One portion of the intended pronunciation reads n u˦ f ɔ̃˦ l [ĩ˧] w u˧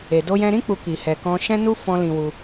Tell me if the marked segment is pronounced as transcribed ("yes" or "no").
yes